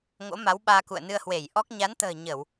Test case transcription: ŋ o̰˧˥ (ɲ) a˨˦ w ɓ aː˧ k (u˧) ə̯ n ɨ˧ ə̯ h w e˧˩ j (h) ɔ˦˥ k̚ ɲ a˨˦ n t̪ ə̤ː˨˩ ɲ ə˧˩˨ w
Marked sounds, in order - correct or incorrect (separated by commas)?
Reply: incorrect, incorrect, incorrect